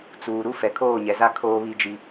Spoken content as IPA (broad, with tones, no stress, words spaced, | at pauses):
t͡suː˨ɾu˦ fɛ˨kʰoː˦˨ɲɛ˨za˦ kʰoː˦βi˦d͡ʒi˦